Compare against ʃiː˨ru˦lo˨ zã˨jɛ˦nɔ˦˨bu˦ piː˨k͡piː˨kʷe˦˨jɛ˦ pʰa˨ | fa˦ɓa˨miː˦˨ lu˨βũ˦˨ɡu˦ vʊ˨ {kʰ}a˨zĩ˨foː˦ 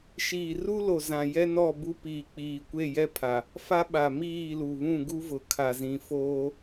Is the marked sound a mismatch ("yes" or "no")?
no